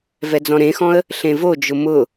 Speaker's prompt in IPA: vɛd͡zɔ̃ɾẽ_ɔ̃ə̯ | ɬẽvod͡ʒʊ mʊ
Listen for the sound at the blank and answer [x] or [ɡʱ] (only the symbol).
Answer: x